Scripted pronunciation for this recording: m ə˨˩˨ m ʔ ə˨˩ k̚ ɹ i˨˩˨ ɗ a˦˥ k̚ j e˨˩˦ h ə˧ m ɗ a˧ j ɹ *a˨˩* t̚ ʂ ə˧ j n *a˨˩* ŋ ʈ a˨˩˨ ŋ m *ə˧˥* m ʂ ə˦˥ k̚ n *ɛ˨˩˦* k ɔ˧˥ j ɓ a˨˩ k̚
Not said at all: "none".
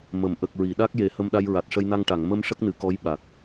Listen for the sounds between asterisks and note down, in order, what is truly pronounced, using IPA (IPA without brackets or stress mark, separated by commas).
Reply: a˨˩, a˧, ə˧, ɨ˨˩˦